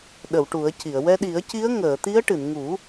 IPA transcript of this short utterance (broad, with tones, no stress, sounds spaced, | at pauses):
ɗ ə˨˩˨ w ʈ u˨˩˦ ə̯ c i˨˩˨ ə̯ w ɛ˧ ɗ i˨˩˦ ə̯ c i˧˥ ə̯ ŋ əː˨˩˨ t̪ i˧˥ ə̯ ʈ ɨ˨˩˨ n ŋ u˨˩˦